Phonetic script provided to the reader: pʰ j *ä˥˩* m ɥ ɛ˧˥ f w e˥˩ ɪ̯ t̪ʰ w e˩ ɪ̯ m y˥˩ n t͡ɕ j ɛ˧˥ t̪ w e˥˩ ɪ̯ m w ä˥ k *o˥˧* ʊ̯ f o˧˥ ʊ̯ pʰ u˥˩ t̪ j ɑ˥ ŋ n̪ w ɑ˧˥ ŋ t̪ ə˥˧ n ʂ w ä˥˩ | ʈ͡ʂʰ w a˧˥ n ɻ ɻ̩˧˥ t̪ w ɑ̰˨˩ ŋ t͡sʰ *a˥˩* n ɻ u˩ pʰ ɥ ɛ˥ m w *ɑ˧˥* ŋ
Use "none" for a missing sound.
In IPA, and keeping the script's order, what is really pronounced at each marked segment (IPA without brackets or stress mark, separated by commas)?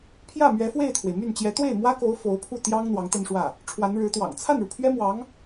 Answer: ä˥˩, o˧˥, a˥˩, ɑ˧˥